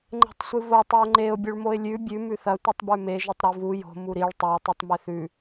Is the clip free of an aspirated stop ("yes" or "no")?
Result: yes